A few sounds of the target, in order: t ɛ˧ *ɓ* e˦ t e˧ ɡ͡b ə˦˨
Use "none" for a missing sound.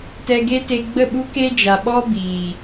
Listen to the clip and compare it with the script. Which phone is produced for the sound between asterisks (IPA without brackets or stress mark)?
ɡ